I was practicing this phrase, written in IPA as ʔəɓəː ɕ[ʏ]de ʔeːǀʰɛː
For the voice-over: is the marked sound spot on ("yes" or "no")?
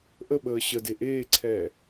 no